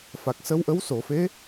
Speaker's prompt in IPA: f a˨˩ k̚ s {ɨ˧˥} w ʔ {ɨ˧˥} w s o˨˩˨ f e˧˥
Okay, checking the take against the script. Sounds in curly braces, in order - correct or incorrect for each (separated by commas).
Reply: incorrect, incorrect